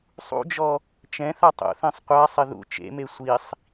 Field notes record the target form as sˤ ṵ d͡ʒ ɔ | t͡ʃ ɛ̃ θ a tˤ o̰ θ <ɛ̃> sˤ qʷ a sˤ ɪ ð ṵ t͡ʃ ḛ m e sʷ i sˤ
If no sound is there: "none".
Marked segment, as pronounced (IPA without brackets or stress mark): ɛ̃